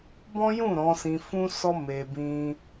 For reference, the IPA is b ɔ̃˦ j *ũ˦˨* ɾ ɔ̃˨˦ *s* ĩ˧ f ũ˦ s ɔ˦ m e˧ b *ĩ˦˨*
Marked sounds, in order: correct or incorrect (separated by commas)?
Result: correct, correct, incorrect